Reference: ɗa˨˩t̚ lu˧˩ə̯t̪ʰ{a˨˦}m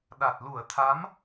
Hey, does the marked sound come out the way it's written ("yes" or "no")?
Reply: yes